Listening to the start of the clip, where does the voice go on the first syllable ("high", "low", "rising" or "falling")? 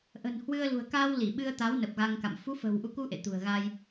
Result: low